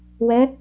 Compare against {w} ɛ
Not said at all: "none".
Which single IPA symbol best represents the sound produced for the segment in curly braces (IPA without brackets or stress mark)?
w